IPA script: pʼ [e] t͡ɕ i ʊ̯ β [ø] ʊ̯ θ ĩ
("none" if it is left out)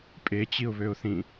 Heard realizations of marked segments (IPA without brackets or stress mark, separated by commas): e, ø